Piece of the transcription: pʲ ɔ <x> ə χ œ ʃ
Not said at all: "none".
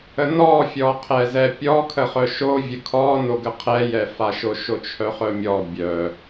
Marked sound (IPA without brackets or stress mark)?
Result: kʰ